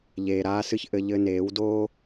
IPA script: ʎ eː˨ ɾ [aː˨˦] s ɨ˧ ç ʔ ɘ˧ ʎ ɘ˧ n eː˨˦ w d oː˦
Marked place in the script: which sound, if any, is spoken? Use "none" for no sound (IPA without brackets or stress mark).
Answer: aː˧